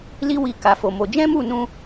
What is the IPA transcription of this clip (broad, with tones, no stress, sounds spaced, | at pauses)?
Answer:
l i˦ w i˧ k a˧ f o˧ m o˧ d͡ʒ ɛ̃˦ m u˦˨ n ũ˧